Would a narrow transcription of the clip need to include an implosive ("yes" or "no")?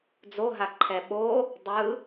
yes